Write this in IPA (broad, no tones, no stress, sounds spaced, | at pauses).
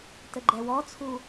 t ə ɡ͡ǃ ɛ w ɔ t͡sʰ u